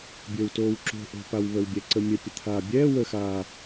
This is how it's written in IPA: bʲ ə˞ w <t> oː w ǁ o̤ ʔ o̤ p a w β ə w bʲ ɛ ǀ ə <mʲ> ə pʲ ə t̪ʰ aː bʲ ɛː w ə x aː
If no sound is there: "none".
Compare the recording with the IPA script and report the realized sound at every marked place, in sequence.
t, mʲ

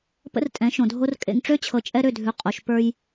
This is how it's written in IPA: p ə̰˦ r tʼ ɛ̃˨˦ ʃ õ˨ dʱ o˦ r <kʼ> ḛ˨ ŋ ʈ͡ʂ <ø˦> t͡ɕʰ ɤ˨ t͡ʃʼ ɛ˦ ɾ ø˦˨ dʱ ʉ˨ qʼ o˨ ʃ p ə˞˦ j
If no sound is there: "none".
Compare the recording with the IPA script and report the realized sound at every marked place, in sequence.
kʼ, ø˦

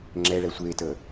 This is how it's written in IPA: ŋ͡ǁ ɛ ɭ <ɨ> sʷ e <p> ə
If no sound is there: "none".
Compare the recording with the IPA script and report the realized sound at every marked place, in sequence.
ɛ, t

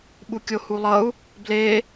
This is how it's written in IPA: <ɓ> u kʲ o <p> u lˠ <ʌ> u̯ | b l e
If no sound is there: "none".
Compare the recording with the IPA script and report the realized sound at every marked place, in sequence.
ɓ, h, ʌ

